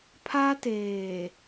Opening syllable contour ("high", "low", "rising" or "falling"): high